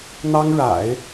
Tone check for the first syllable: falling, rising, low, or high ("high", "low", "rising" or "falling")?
high